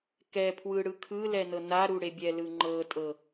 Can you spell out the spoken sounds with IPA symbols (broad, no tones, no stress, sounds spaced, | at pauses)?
k ɛ pʰ w ɯ ɽ ɯ kʰ ɯ l ɛ n ɤ n a ɾ u ɽ e bʲ ɛ l ɯ ŋ͡ǃ ɤ tʼ ɤ